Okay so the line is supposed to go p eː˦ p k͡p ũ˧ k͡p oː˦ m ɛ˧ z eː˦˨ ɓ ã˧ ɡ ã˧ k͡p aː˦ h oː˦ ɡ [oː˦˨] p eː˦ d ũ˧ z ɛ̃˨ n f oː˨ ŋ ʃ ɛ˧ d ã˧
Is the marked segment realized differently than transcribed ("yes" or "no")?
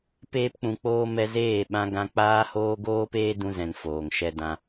yes